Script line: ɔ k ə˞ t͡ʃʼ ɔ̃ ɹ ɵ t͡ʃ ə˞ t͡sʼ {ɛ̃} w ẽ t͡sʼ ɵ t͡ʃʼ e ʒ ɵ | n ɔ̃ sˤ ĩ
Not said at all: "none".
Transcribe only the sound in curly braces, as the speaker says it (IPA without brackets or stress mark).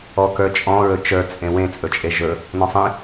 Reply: ẽ